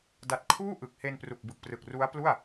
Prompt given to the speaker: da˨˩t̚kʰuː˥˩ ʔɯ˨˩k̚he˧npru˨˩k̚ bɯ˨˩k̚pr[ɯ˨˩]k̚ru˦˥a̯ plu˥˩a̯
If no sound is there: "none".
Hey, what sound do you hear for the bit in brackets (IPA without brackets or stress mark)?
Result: ɯ˨˩